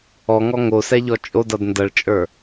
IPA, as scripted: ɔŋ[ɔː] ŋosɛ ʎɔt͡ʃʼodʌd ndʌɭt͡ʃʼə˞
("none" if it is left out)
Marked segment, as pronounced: ɔ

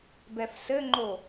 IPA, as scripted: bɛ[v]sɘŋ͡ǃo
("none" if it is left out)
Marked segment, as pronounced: f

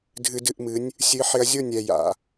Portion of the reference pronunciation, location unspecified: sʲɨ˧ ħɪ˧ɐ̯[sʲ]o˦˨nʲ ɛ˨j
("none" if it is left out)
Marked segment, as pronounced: zʲ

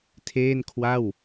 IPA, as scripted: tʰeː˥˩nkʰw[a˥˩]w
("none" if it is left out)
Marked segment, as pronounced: a˥˩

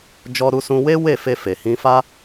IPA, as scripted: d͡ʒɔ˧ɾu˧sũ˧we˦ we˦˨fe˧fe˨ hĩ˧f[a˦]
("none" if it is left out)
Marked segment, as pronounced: a˦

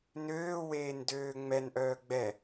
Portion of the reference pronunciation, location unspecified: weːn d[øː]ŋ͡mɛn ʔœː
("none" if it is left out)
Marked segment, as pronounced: øː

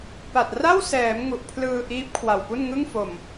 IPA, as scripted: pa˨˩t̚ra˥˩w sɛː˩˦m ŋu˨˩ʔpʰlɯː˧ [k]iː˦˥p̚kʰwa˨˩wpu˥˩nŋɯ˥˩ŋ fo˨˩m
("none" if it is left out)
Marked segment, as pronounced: ʔ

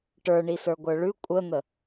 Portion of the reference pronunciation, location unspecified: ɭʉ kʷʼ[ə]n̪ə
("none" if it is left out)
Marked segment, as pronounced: ə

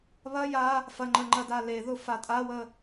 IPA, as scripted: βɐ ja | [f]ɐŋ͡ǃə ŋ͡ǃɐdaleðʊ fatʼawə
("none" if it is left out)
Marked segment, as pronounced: f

